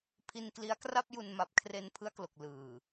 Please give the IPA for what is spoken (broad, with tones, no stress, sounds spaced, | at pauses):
pʰ i˧ n k l i˦˥ a̯ k r a˥˩ p̚ j u˧ n m a˨˩ p̚ kʰ r e˧ n pʰ ɯ˦˥ a̯ k l o˨˩ k̚ l ɯː˨˩